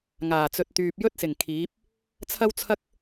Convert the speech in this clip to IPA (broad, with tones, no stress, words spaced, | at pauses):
ŋaː˨˩t͡sɵ˨t̚t̪yː˨p̚ jɵ˥t̚sɪ˨˩ŋ kʰiː˨˥p̚ | t͡sʰɐ˥wt͡sʰɐ˥k̚